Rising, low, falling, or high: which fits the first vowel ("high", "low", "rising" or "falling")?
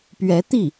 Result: rising